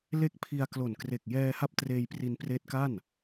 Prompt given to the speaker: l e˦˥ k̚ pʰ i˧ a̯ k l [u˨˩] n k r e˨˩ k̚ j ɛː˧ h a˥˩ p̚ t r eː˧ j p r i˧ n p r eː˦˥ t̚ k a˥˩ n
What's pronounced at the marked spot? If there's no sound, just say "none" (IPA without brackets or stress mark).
o˨˩